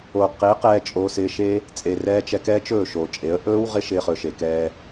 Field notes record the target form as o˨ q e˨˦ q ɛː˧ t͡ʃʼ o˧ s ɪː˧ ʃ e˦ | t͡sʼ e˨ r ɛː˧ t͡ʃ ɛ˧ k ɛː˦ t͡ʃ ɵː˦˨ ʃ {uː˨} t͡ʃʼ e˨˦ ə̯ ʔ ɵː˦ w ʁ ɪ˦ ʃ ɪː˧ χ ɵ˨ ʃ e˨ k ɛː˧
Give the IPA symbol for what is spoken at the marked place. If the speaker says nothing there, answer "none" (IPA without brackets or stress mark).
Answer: oː˨